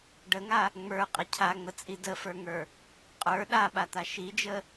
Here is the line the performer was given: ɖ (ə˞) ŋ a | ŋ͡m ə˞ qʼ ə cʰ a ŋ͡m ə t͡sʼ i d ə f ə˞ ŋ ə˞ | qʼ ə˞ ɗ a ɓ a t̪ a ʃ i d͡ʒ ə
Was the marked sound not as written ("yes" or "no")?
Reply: yes